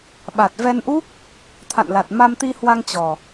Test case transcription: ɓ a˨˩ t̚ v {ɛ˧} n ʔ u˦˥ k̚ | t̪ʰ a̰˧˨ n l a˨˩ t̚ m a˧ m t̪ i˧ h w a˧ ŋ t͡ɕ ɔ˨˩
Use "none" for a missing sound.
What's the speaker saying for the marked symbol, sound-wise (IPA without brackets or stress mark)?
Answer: ɛ˧